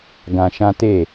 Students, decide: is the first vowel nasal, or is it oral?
nasal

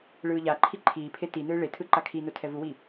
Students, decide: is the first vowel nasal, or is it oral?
oral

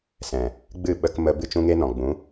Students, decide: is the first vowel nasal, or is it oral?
nasal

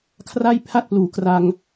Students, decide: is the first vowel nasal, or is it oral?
oral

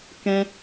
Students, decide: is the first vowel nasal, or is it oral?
nasal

